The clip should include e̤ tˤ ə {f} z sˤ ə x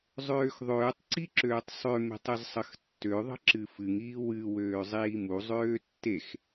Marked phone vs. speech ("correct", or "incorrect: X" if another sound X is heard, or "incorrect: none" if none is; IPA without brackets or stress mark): incorrect: none